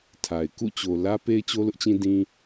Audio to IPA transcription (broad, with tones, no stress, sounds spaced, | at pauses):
tʰ a˨ ɪ̯ k ṵ˦˨ t͡ɕ o˨ l ä˦ p e˦ ɪ̯ t͡ɕ o˦ l ʊ˦ ʔ t͡ɕ ĩ˦ d ĩ˦